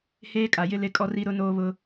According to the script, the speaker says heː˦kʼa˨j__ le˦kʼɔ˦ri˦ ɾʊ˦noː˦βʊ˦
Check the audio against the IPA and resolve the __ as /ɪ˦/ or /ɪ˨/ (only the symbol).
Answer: ɪ˦